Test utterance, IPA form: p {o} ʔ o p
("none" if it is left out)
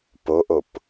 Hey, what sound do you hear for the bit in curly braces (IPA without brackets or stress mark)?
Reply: o